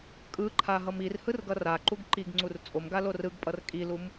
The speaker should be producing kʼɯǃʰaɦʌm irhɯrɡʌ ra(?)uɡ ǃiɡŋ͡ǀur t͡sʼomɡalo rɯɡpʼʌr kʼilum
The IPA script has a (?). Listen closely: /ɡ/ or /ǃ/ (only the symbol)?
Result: ǃ